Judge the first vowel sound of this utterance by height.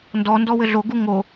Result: mid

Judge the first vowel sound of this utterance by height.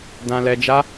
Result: low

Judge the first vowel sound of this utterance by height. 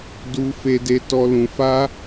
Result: high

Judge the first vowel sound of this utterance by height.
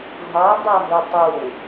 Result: low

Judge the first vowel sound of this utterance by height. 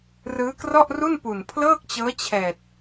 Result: high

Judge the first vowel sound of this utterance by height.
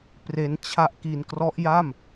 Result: mid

